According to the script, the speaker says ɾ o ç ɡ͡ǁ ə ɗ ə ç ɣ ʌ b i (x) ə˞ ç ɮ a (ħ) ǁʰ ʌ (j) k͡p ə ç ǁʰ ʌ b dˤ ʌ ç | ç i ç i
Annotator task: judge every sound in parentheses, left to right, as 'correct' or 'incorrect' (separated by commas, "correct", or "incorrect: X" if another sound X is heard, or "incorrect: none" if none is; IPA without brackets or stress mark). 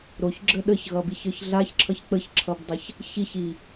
incorrect: ç, incorrect: ç, incorrect: ç